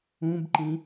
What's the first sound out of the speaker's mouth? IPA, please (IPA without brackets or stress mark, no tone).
ũ